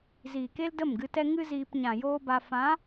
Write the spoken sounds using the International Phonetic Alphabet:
ziː˨ke˦l də˦˨mɡɨ˧tɛ˦ŋɨ˦ ziː˧p ɲã˨ joː˦ba˧ fã˨˦

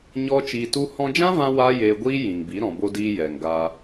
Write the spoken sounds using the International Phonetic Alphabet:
ɲɔ˦t͡ʃiː˧tu˦ hɔ̃˧d͡ʒã˦vã˧ wa˦jeː˧ ɡʷiː˦jĩ˨ŋbi˨˦ ɾɔ̃˨bo˧diː˧ jɛ˨ŋɡaː˧

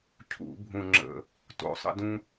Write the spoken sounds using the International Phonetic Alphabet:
cʰṵ˧˩˧bʱũ˨˩ŋ͡ǁə̰˨˩ | to̰˨˩sˤə̰˦dũ˦

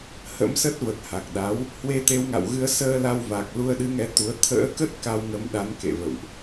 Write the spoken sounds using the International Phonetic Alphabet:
hə̰˧˥msə˦˥t̚və˨˩t̚ ha˨˩k̚ɗa˨˦w | hwe˧t̪e˨˦wŋa̰˧˨wɣɨ˧ə̯ səː˧la˧w va˨˩k̚ lu˧ə̯ɗɨ˨˦ŋɛ˨˦ t̪u˨˦ə̯ t̪ʰə̰ː˧˥kə˦˥t̚ ka˧wŋə˨˦m ɗa˨˦nkḛ˧˨ və̰˧˨wʔ

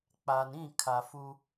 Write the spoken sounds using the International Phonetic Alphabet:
k͡pa˨nĩ˦˨kʰa˨ fu˦

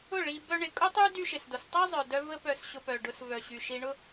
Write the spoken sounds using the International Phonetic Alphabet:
ʊ˦˨ ɭi˧bœ˦ɳɪ˧ kʼʊ˦tˤy˦ dy˦ʃɪ˨sdo˨s tˤi˦zˤœ˨dœ˧ və˦pœ˧s ɕʊ˧pœ˨ɖʊ˧s vœ˨ɕy˨ʃi˧ ɳʊ˦

